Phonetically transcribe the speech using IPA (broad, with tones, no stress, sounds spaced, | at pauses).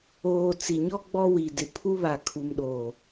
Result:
oː˨ t͡s i˨ ɲ ɔ˦ ɡ͡b ɔ˦ w i˨ d ɪ˨ pʰ u˦ β a˨ kʰ u˨ m ɗ oː˨